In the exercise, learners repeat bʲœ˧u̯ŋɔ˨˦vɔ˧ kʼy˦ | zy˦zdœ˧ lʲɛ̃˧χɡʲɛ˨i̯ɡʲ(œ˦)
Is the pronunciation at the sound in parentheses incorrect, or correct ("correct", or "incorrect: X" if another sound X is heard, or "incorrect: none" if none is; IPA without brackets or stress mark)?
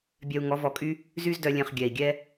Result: incorrect: ɛ˦